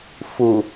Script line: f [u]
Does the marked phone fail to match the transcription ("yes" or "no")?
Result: no